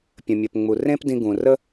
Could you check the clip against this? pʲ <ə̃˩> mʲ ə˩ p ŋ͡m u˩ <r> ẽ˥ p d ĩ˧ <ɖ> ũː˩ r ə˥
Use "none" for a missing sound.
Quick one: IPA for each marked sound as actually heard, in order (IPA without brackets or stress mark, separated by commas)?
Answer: ə̃˩, r, ɡ